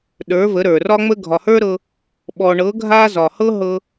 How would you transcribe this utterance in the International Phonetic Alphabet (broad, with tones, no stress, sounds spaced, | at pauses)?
ɗ ə˞˨˦ v ə˨˦ ɾ ə˞˨ r ɒ˦ ŋ͡m ə˦ ɡʱ ɒ˨ h ə˞˦ ɾ ɤ˧ | ɓ ɔ˨ ɳ ɤ˨˦ ɡʱ a˦ z ɒ˨ h ɤ˦ ɦ ɤ˧